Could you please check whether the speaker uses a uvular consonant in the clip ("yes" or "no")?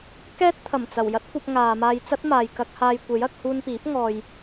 no